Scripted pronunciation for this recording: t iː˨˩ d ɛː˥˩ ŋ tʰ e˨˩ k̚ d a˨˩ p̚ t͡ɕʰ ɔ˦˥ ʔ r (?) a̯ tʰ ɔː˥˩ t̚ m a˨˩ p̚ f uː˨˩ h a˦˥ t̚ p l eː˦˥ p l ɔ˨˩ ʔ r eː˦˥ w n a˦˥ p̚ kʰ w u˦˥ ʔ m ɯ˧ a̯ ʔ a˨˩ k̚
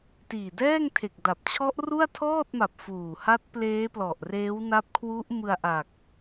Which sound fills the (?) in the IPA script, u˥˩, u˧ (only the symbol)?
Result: u˥˩